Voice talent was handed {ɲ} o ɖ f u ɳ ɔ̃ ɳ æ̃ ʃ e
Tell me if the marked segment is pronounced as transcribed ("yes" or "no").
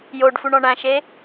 no